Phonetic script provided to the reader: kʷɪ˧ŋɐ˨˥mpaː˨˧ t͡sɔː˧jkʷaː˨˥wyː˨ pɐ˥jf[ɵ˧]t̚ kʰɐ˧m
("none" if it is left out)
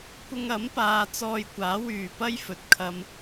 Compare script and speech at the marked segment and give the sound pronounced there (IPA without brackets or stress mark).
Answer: ɵ˨